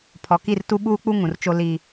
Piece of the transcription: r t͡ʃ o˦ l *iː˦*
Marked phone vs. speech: correct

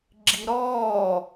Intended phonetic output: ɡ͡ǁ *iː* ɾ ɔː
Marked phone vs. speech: incorrect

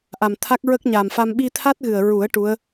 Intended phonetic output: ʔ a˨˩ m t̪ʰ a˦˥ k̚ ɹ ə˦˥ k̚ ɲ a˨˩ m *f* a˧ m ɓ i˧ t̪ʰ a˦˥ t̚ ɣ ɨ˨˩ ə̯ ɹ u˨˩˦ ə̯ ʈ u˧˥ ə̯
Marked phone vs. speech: correct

